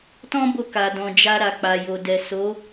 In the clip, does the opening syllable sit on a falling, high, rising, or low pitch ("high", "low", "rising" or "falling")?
high